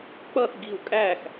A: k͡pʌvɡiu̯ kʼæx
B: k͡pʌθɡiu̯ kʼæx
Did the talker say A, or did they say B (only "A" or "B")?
B